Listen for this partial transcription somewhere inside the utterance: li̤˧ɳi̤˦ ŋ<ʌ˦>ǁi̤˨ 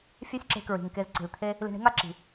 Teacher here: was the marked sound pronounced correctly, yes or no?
no